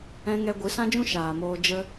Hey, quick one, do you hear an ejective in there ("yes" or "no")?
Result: no